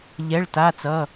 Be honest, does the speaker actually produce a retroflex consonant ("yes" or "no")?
yes